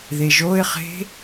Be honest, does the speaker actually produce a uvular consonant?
yes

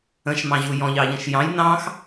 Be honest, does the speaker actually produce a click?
no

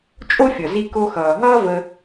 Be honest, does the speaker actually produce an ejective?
yes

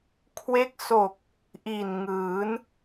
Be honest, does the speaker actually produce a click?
no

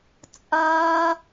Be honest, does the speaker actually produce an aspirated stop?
no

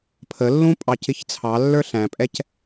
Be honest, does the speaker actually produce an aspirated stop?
yes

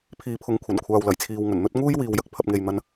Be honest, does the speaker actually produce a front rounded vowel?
no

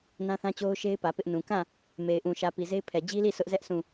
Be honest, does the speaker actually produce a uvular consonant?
no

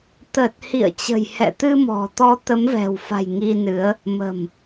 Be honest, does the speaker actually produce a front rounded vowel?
no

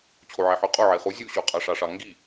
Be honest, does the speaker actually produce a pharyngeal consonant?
yes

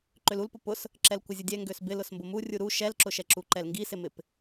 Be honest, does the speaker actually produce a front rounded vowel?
yes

